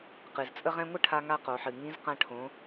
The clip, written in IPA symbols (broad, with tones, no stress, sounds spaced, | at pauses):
q ɨ˩ z t͡sʼ ə˥ ʁ ɛ̃˥ ŋʷ ə˥ ʈʰ a˧ ŋ a˧ q o˩˧ ħ ɨ˩ ŋ ĩ˧˥ z q ã˧ ʈʰ õ˩˧